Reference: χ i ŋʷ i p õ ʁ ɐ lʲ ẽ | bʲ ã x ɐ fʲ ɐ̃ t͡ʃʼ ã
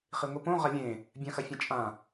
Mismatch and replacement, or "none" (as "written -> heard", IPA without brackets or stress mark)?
none